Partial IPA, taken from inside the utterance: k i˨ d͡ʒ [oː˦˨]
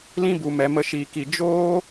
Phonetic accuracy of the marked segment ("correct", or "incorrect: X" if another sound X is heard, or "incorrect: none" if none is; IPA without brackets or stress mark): incorrect: oː˦